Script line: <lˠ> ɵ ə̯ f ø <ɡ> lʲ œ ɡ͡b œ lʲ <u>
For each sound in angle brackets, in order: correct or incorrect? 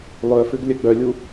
correct, correct, correct

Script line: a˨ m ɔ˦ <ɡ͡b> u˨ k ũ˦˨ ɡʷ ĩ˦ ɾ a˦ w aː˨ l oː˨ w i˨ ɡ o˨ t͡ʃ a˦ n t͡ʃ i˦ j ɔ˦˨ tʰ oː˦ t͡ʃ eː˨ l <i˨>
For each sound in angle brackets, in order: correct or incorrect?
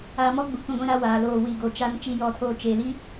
correct, incorrect: i˦

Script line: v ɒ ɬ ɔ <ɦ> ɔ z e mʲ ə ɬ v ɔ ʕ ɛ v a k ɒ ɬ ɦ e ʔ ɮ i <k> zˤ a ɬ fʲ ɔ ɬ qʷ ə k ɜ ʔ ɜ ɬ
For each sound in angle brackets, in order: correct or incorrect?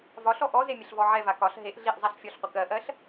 incorrect: ʔ, incorrect: ʔ

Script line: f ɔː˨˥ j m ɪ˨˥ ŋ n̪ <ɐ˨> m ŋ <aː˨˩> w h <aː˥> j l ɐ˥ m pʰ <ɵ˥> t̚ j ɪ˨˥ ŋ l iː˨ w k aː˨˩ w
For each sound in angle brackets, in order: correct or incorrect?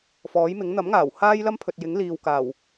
incorrect: ɐ˨˥, correct, correct, incorrect: ɵ˨

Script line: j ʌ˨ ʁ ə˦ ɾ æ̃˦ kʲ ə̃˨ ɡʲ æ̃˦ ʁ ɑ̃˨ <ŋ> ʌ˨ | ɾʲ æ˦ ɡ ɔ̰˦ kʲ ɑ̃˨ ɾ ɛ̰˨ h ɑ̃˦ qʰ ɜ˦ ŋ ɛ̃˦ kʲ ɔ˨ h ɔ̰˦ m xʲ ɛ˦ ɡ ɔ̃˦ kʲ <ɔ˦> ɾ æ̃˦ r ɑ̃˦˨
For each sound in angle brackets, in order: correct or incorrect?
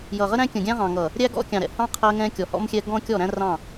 correct, incorrect: ɔ˦˨

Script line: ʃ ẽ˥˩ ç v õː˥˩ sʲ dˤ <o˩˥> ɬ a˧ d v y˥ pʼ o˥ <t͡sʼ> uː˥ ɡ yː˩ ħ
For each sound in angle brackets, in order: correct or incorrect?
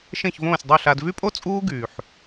incorrect: o˥˩, correct

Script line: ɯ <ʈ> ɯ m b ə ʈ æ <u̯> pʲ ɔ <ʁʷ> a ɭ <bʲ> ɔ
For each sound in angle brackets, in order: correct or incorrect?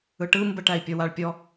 correct, incorrect: i̯, incorrect: w, incorrect: pʲ

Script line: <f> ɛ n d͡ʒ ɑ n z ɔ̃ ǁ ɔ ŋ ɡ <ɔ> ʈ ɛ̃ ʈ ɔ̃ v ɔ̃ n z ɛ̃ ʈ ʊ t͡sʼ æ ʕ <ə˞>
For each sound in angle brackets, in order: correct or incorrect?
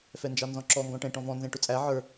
correct, incorrect: ɔ̃, correct

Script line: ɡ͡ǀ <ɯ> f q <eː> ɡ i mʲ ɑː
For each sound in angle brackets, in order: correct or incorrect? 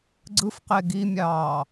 correct, incorrect: e

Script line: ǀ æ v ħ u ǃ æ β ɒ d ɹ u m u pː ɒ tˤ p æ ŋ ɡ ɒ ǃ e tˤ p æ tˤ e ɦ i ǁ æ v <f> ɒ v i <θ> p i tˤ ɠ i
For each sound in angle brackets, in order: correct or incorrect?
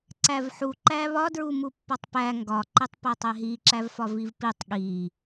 correct, incorrect: v

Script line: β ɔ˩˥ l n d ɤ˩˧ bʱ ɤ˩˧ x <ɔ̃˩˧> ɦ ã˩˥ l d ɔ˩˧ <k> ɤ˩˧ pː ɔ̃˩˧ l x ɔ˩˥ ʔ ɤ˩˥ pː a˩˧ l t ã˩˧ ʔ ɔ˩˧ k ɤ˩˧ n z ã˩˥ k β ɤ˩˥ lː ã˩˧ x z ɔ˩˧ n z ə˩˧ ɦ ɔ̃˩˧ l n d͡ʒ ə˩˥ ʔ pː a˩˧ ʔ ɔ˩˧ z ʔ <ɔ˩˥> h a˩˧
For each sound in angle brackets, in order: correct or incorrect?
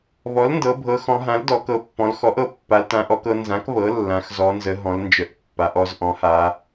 correct, correct, incorrect: ɔ̃˩˥

